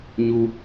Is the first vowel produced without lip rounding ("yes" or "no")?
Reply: no